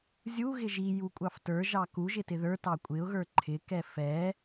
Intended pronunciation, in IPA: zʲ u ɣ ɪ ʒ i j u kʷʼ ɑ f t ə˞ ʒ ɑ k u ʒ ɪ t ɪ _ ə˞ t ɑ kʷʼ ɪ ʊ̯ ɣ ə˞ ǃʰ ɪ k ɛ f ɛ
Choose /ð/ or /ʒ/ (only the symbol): ð